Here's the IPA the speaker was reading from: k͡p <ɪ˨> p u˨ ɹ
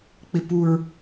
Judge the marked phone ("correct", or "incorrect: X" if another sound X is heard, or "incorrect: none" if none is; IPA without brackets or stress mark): correct